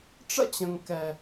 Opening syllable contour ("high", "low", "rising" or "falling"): high